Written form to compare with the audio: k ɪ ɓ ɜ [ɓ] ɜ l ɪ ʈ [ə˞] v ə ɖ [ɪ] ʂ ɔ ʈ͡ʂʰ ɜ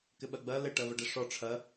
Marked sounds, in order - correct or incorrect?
incorrect: ɡ͡b, incorrect: ɜ, correct

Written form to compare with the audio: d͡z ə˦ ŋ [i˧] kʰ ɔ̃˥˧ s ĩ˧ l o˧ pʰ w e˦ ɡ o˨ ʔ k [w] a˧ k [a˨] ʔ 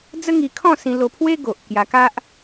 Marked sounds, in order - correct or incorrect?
correct, incorrect: j, incorrect: a˦

